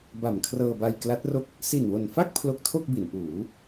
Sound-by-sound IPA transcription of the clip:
b a˨˩ m kʰ r ɤː˧ b a˧ j k l a˦˥ t̚ r o˥˩ k̚ | s i˨˩ n w o˨˩ n f a˥˩ k̚ pʰ l o˦˥ k̚ tʰ o˥˩ k̚ b i˩˦ n ʔ uː˩˦

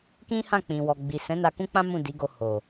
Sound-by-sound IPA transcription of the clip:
k ĩ˦ h ã˦˨ k͡p ĩ˨ w ɔ˨ ɡ͡b i˨ s ɛ̃˨˦ n a˧ k ũ˦ k͡p ã˦ m ũ˦˨ d i˨˦ ɡ o˧ h o˨

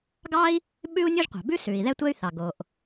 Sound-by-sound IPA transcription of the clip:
ɡ ɑ˥ i̯ | ɓ ʉ˥ u̯ nʲ o˥ ʒ qʷ ɑ̤˩ b ʉ˥ s ʉ˩ i̯ ð ɛ˥ tʷ ɛ˥ y̯ θ ɑ˩ ɡ o˩ ʔ

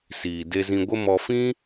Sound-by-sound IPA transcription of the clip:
s iː˨ d e˧ z ĩ˧ ɡʷ ə˦ m ɔ˧ f ĩ˦

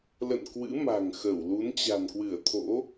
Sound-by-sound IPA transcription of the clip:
l ə̰˧˨ n k w ɨ̰˧˥ m a̤˨˩ ŋ x ə˧˩ w l u˨˦ n t͡ɕ a̤˨˩ n k w ɨ˧˩ ə̯ t̪ʰ o̰˧˥

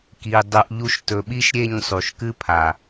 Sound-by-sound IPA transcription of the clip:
k i˨ dˤ u˨ ʔ ʎ u˧ ʃ t ɵ˨ ɓ i˦ ʃ ɾʲ e˦˨ ɲ sˤ u˨ ʃ k ɨ˦ pʰ a˨

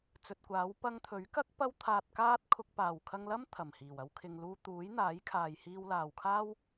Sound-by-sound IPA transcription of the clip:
t͡s ɵ˨ t̚ kʷ aː˨˥ w p ɐ˧ ŋ t̪ʰ ɵ˨˥ ɥ k ɐ˥ k̚ p ɐ˥ w t̪ʰ aː˧ t̚ k aː˥ t̚ kʰ ʊ˧ k̚ p aː˨˩ w kʰ ɐ˧ ŋ l ɐ˥ m t̪ʰ ɐ˨˩ m h iː˨˩ w ɐ˧ w kʰ ɪ˨ ŋ l uː˧ t̪ uː˨˥ j n̪ aː˨˥ j kʰ aː˨ j h iː˧ w l aː˨ w kʰ aː˥ w

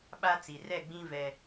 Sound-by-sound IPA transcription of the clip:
ɓ a˦ t͡s i˨ r ɛ˦˨ ɡ͡b ĩ˦ v ɛ˦

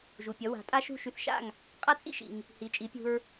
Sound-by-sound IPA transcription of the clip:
ʒ u˩ pʲ ʌ˩˥ w a̤˩˥ tʼ a˥ ʃ ṳ˥˩ ʃ y˧ θ ʃ a̰˥˩ ŋ | qʼ a˥ t͡sʼ ḭ˥ ʃ ḭ˩ ŋ | h i˩˥ t͡ʃʼ i˩˥ pʲ ṳ˧ ɹ

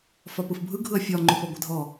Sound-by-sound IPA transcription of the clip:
f ɒ p ɯ f bʱ ɯ ɡʱ ɯ ɐ̯ fʲ ɒ ŋ͡ǃ o p ɔ ɡʷ ɛ dʱ ɔ

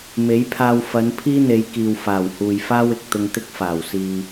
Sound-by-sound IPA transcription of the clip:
m e˨˥ j pʰ aː˧ w f ɐ˨˧ n pʰ iː˥ n̪ e˨˧ j k iː˨ w f aː˨˩ w h uː˨ j f aː˥ w ɪ˨ k̚ t̪ ʊ˧ ŋ t̪ ɪ˥ k̚ f aː˨˩ w s iː˨

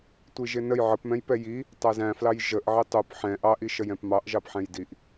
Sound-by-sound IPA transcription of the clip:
tʷ i ʒ ɪ n ə j ʕ ə p m ɛ̃ j p ɛ j i | tˤ æ z æ̃ f l ɑ j ʒ ə ʔ ʕ i tˤ u p ħ ɛ̃ ʔ ɑ ʔ i ʃ ə j ɛ̃ p m ɑ ʔ ʒ ɑ p ħ ɛ̃ j d i ʔ

